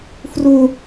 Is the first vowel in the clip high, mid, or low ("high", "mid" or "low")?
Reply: high